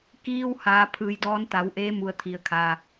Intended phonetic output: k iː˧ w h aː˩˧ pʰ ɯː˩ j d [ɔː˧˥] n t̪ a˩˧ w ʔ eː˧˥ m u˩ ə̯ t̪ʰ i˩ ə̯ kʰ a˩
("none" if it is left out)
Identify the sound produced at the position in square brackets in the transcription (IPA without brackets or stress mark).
ɔː˧˥